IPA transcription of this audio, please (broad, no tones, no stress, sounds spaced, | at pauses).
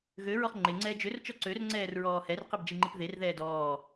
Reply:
ɣ ø ɹ ɔ χ ŋ͡ǃ e ŋ͡ǀ ɛː d͡ʒ ø r t͡ʃ ɔ ǀ ø r ŋ͡ǀ ɛː r ɹ ɔː h ɛ r q i b d͡ʒ i ŋ͡ǃ i p ð e r ð ɛː d ɔː